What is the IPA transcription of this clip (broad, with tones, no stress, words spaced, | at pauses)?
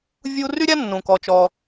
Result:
vʲu˧ ry˥ɾʲa˥nːũ˩ kɔ˩ t͡ʃɔ˩